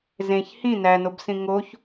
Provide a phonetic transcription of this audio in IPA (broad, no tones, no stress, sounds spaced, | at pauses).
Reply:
z ẽ ç h ĩ n æ n o b s ĩ ŋ o ç